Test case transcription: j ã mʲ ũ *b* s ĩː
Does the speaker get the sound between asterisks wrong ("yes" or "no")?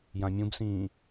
no